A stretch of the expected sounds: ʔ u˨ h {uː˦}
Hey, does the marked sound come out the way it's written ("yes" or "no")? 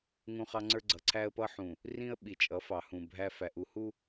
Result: no